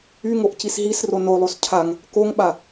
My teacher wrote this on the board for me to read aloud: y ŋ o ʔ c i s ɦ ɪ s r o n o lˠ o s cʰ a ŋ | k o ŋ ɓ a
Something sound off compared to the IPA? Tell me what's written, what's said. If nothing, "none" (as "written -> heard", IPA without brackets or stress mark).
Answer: ɪ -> i